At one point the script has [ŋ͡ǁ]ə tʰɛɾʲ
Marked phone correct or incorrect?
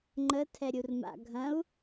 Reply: incorrect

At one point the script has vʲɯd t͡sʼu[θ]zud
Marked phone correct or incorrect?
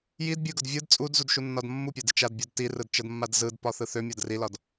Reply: incorrect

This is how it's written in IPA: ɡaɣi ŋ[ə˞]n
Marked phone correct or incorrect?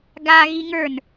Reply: correct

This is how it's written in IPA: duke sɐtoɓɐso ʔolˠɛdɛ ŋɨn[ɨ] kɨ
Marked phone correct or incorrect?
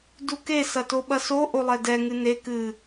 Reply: incorrect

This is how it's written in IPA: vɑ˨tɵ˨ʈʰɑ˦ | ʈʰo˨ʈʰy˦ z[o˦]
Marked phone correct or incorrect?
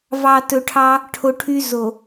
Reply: incorrect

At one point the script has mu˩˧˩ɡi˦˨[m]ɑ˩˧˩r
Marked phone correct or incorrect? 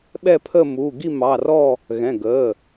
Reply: correct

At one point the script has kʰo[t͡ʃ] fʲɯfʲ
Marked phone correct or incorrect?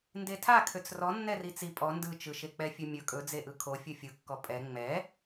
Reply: incorrect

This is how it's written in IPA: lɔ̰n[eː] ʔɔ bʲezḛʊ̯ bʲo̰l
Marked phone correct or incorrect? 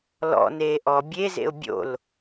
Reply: correct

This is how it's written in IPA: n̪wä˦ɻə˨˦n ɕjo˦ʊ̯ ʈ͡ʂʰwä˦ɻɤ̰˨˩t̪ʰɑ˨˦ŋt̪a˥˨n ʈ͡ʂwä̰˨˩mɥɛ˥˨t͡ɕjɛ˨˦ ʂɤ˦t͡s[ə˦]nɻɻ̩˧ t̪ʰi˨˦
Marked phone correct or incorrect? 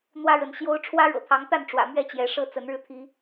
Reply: incorrect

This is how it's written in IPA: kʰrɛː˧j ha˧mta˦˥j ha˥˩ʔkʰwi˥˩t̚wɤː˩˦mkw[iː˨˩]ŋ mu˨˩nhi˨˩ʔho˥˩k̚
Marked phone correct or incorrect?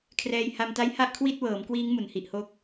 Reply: incorrect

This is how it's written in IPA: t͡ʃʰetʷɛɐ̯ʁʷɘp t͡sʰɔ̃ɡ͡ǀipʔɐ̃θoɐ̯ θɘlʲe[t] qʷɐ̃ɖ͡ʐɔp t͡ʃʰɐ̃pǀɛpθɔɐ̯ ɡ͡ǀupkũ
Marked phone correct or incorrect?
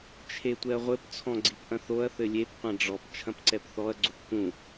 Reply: incorrect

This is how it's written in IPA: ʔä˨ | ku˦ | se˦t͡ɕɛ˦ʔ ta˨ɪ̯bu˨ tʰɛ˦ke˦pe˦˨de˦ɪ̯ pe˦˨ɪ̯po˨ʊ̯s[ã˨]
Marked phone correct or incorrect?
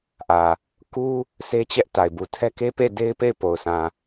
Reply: correct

